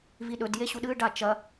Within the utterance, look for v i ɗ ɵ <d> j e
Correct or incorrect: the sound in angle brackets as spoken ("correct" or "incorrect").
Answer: correct